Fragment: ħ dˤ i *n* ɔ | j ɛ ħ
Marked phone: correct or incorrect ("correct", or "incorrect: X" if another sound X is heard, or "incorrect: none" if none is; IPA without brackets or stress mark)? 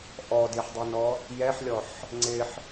correct